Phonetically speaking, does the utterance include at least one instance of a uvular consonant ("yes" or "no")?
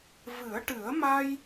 no